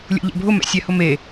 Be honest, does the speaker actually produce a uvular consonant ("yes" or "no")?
no